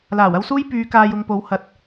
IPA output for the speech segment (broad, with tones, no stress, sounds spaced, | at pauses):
l aː˨˩ w ɐ˥ w s uː˥ j p yː˨˧ k aː˧ j ʊ˧ ŋ p o˨˧ w h ɐ˨ t̚